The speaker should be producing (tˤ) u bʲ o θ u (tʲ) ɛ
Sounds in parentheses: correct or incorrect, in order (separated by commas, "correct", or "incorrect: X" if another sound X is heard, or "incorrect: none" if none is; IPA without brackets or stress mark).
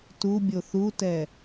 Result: incorrect: t, incorrect: t